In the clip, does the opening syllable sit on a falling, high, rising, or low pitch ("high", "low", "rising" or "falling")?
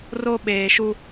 high